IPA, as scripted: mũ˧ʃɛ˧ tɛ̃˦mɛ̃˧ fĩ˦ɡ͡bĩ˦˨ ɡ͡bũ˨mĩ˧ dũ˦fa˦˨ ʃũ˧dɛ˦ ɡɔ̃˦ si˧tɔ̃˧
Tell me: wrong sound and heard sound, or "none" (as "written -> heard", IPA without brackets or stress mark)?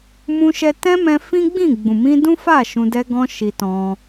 s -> ʃ